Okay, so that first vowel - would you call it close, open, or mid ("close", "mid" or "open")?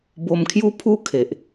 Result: mid